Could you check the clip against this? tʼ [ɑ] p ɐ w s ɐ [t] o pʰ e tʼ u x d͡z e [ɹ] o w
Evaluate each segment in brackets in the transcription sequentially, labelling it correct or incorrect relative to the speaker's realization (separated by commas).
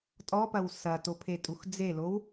incorrect, correct, incorrect